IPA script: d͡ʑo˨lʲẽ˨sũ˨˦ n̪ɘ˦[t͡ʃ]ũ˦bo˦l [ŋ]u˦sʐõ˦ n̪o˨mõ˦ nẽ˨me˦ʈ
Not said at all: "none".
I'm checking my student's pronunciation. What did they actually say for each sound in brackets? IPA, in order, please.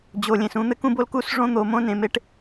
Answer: k, k

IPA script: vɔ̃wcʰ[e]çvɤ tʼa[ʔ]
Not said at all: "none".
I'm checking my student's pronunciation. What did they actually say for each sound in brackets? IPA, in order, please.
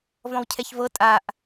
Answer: ɛ, ʔ

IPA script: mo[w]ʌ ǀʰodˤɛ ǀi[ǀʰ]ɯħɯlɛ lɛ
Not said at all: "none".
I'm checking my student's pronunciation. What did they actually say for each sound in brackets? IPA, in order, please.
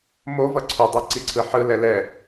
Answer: v, ǀʰ

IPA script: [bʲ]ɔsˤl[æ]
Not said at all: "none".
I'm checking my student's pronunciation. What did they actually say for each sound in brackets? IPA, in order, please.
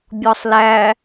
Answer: bʲ, æ

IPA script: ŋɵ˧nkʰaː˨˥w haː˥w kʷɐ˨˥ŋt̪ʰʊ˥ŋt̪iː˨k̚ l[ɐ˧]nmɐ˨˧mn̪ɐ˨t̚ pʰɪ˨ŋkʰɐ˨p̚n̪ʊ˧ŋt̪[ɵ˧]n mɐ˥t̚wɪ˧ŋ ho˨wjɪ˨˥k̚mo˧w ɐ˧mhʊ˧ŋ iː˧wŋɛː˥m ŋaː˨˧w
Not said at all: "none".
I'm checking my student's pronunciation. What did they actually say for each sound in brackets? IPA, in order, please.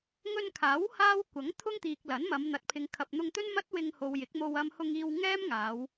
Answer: ɐ˨˥, ɵ˥

